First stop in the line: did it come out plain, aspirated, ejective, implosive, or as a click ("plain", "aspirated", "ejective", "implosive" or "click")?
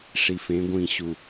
plain